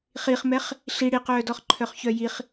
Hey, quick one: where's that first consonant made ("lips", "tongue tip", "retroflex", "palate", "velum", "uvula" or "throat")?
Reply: uvula